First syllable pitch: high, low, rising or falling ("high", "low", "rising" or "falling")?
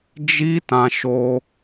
high